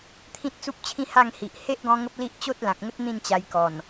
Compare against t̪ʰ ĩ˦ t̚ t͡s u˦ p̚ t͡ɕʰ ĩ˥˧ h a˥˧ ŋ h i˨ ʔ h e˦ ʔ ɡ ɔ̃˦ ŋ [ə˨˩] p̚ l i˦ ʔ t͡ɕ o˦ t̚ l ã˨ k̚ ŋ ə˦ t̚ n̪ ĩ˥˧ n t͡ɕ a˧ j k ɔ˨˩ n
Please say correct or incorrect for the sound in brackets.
incorrect